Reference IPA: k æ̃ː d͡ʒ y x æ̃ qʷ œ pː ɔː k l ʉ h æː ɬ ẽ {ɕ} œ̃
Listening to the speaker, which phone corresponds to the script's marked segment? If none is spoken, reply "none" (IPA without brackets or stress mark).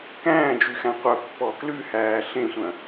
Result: sʷ